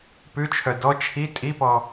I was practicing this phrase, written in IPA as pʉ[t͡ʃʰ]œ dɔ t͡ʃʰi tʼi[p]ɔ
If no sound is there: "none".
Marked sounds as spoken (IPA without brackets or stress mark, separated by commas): t͡ʃʰ, p